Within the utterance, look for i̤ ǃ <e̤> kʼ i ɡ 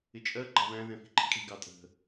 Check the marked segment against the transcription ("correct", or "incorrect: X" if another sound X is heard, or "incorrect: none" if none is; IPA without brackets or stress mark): incorrect: i̤